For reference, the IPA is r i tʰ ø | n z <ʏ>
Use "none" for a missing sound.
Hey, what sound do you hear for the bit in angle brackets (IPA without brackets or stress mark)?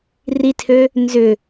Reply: ʏ